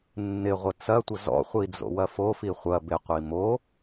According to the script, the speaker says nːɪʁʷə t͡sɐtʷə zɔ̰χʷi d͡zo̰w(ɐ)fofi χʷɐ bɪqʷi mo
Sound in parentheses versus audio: correct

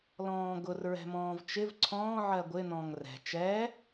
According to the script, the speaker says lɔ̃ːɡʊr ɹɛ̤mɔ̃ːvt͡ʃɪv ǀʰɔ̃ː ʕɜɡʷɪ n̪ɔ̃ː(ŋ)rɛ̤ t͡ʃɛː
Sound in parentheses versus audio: correct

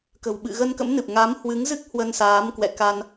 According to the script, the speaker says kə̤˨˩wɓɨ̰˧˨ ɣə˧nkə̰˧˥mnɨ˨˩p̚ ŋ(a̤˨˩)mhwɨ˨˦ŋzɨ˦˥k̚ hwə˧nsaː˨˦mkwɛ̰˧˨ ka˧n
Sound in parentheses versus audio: incorrect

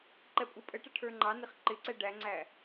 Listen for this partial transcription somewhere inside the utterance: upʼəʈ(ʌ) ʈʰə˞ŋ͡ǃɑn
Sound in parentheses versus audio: correct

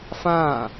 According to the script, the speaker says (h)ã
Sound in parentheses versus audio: incorrect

